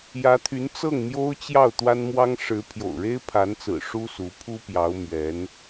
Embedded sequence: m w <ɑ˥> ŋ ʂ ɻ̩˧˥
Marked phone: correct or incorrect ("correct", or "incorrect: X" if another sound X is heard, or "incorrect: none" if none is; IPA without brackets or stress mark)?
correct